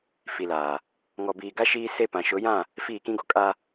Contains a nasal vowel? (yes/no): yes